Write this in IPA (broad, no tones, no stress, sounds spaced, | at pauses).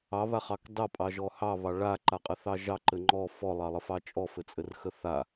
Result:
ɑ β a χ ɑ k d ɑ pʼ ɑ ʒ ɔ h ɑ β ɑ ɭ a ǃ a qʼ ɘ θ ɑ ʒ ɑ ǃ ɘ ŋ͡ǃ ɔ f ɔ lˠ ɑ lˠ ə f ɑ t͡ʃʼ ɔ f ɘ t͡sʼ ɘ r x ə θ a